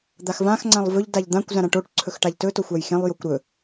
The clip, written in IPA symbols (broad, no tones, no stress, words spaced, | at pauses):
d̪axvãx ŋ͡ǀãlˠvɵʎ daʎd̪ãkʷ zãɾãʈoʈ ǀʰɵxʈaʎtɵ toxʷajxẽlˠ jokʷɾɵ